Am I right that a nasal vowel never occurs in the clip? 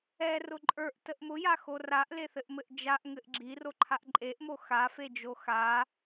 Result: yes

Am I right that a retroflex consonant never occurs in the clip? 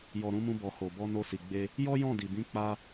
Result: yes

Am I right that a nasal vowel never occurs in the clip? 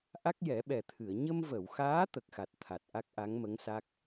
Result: yes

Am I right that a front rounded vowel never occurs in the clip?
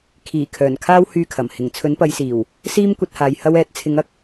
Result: no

